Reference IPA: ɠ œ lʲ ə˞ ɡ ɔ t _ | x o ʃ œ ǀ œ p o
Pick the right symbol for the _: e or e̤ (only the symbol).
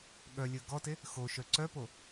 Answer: e